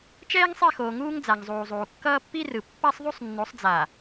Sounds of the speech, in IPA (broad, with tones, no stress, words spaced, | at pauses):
t͡ʃɛː˦ŋsˤɛ˦˨xoː˨ ŋuː˦ŋ d͡za˨ŋzˤuː˨zˤuː˨ kːʌː˦pːi˦rɯ˨ pːa˦sˤðˤu˦sˤnːo˨˦sˤd͡za˨